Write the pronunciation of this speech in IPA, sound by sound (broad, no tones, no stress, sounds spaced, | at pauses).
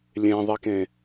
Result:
lʲ ẽ ðˤ i k ẽ